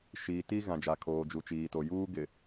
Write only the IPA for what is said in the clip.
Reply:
ʃ iː˨ t i˦ ɣ ã˨ d͡ʒ a˨ kʰ oː˨ d͡ʒ u˨ t͡ʃ iː˨ t o˨ j uː˦ ɡ ɪ˨

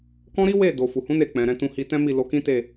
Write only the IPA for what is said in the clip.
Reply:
k ɔ̃˦ ɾ i˦ w e˦˨ d o˨ f u˨ h ũ˨˦ n e˧ k͡p ɛ̃˨ ɾ ɛ̃˧ t ũ˧ h i˧ t ɛ̃˦ m i˦˨ l o˧ k ĩ˦ t e˦˨

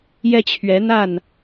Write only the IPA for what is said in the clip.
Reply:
j ɛ˦ t͡ɕʰ ɥ ɛ˨˦ n̪ a˥˨ n

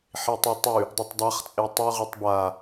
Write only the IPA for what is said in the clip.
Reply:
ħ i tˤ u tˤ ʉ | dˤ ɨ tˤ dˤ a χ t͡sʼ e tˤ ʉ ʁ ɨ tˤ b a

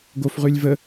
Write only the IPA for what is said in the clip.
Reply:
ɡ o f ʁ ʉ lʲ v ə

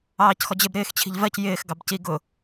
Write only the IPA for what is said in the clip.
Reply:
ɑː c x ɔ d͡ʑ ɪ b ɾ ɪː x t͡ɕʰ i̤ ʎ v ɜ c j ɪː x ɡ ɑ b c i ɡ ʊ

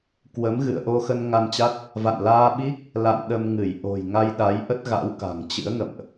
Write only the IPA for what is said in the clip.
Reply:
k w ə˨˦ m ɣ ɨ̰˧˨ ə̯ ʔ o˧ x ə˧ n ŋ a˧ n t͡ɕ a˦˥ t̚ | v a̰˧˨ n l aː˧ ɓ i˦˥ k̚ | l a̰˧˨ n ɗ ə˧ m ŋ ɨ˧˩ j ʔ o̤˨˩ j ŋ a˧ j ɗ a˨˦ j ʔ ə˦˥ t̚ ɣ a̰˧˥ w k a̤˨˩ ŋ t͡ɕ ɨ̰˧˥ ə̯ ŋ ə̰˧˨ m ʔ

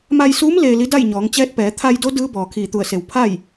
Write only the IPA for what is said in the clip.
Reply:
m a˧ j s uː˧˥ m l eː˧ l i˧˥ d a˥˨ j ɲ ɔː˩˧ ŋ t͡ɕ ɛː˧˥ t̚ p ɛː˩˧ t̪ʰ a˧ j d o˧˥ d ɯː˧˥ b ɔː˩ kʰ iː˧˩ t̪ u˧˩ ə̯ s e˩ w pʰ a˥˨ j

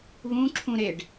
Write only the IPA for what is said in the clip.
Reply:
β ũ ǁʰ ũ ɾ e ɖ

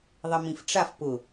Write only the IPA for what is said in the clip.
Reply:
ðˤ ɪ m ĩ f ʈ͡ʂ a f p ʊ

